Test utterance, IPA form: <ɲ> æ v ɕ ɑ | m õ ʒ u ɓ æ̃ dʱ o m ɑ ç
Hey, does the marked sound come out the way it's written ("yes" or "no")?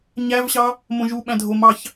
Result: yes